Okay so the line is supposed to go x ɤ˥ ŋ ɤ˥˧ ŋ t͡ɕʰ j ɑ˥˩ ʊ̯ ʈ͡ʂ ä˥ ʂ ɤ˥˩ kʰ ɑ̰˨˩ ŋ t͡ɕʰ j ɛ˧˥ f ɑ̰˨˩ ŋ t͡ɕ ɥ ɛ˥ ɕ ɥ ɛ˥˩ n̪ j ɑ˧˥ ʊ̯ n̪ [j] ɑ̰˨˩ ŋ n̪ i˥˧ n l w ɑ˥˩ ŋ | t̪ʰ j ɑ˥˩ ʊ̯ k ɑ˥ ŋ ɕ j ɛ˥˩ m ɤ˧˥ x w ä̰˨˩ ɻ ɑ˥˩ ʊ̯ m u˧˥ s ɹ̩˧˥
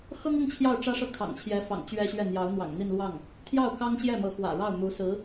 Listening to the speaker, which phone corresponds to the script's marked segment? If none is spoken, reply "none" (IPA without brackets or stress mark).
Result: w